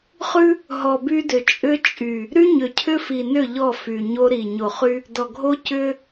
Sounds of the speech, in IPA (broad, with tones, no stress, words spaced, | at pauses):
χʉ˦ | ɦɔ˨by˦dʏ˨ t͡ʃʼʏ˦t͡ʃʼy˨ | ɾy˦ɲʏ˨ cʰʏ˦fi˨nʏ˦˨ ʎɔ˦˨fy˨ɲo˦ ɾi˨ ɲo˨χy˦ | dɔ˨ɡʱo˦ cʏ˦